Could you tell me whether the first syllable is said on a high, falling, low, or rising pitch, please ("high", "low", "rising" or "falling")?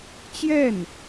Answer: falling